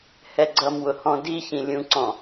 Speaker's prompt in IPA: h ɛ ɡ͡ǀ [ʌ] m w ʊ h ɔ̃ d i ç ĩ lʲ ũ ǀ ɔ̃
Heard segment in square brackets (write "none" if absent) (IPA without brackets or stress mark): ʌ